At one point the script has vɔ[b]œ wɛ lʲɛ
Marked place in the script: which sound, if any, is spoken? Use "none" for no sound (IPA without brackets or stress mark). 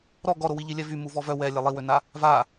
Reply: v